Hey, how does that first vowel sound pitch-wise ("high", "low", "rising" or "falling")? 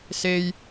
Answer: high